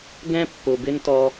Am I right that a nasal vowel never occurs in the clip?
no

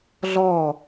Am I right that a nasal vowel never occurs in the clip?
yes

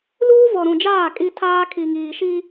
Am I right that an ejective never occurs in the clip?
no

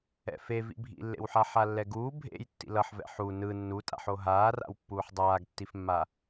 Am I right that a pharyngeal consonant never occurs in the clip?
no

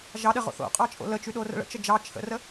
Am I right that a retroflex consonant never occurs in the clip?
no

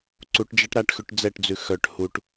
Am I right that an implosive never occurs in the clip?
yes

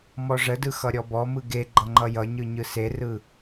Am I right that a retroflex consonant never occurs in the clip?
no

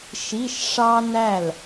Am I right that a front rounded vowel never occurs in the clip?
yes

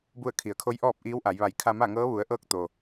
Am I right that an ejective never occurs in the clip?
yes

